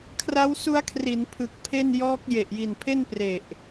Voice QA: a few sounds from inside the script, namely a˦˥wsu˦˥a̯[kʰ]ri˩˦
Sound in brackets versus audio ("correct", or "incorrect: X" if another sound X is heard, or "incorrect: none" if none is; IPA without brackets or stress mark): correct